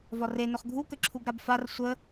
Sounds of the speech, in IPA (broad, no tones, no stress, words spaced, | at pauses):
vɒre nɵχɡʱu kəǁʰuɡɾabfar sʷə